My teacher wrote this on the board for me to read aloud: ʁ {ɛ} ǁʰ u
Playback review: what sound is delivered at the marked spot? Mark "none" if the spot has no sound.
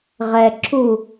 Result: ɛ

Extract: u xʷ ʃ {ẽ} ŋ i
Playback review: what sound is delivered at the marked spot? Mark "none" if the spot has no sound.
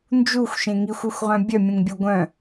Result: ẽ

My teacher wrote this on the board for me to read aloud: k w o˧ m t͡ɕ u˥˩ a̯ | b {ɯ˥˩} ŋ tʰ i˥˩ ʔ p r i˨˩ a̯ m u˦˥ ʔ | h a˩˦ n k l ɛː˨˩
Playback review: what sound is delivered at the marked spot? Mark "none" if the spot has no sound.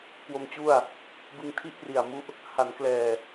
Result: ɯ˧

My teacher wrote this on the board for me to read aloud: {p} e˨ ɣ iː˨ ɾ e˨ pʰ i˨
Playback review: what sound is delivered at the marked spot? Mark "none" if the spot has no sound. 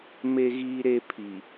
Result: m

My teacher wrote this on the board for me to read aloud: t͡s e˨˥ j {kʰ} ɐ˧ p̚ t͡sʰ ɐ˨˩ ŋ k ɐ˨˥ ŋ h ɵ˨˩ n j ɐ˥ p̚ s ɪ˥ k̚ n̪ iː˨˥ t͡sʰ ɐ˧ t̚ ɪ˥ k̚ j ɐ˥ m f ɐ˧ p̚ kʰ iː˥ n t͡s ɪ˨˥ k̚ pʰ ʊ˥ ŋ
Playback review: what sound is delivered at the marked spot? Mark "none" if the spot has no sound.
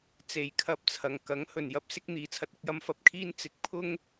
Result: kʰ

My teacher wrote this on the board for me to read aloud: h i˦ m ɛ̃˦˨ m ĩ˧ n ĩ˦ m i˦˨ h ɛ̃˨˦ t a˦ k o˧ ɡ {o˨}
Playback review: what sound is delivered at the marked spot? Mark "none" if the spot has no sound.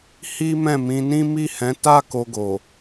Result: o˨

